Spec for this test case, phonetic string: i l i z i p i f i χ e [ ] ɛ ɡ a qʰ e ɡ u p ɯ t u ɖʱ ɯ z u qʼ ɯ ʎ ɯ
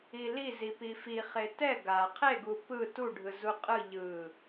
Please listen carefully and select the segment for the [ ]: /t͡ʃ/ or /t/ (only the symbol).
t